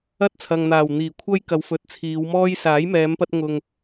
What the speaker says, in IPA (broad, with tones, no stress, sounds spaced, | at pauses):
ɐ˥ t̚ t͡sʰ ɐ˨ ŋ n̪ aː˨˩ w n̪ iː˨˩ kʷʰ ɐ˥ j k ɐ˨˧ w f ɵ˨˥ t̚ t͡sʰ iː˨˧ w m ɔː˥ j s aː˨˥ j m ɛː˨˧ m p ɐ˧ t̚ ŋ ʊ˨ ŋ